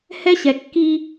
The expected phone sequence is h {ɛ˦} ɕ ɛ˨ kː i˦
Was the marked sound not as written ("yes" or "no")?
no